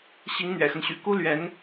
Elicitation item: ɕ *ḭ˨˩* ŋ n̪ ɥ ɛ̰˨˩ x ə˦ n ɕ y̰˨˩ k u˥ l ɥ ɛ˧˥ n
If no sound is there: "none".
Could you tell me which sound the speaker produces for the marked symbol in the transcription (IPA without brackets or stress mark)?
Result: i˧˥